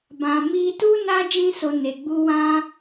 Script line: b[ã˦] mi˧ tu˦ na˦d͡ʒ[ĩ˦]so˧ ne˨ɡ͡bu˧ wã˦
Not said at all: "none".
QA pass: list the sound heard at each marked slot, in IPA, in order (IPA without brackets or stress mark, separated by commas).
ã˨, ĩ˦